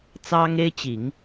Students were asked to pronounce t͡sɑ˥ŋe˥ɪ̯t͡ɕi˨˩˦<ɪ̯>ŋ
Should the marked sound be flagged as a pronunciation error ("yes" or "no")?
yes